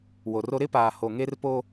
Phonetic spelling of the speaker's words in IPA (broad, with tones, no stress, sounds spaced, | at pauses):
w o˨ r o˦ ɾ ɪ˦ p aː˨ h o˨ ŋ e˦ r p o˦